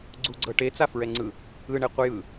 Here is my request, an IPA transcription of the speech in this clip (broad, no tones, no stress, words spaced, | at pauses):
ɡ͡ǀuɡ͡ǀɤ ʈet͡safɹɛŋ͡ǀɯ | ɯɳeqʷɯjɯ